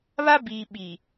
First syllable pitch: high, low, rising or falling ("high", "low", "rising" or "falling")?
high